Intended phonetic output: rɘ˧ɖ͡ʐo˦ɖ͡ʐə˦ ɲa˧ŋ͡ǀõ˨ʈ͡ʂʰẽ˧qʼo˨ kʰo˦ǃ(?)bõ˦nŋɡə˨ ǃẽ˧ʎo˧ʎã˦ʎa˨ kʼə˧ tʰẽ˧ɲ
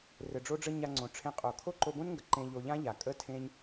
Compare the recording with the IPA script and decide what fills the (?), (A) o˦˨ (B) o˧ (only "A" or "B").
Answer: B